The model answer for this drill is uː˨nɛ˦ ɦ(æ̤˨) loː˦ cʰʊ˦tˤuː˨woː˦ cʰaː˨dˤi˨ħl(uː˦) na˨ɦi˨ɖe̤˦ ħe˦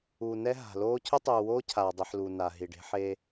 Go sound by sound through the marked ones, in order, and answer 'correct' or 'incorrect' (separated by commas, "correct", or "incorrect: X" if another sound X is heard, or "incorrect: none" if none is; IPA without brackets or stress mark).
incorrect: a̤˨, incorrect: uː˨